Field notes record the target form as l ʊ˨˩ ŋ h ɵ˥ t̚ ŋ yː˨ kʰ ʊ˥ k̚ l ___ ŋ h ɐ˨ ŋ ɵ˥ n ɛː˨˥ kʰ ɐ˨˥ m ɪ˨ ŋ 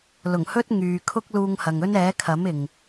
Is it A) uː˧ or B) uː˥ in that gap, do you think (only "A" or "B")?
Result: A